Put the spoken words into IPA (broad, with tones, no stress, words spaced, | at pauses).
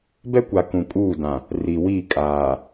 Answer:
bɛ˦kʷa˨ kũ˨kʼuː˦˨dã˨ | ri˨wi˦˨ kʼaː˨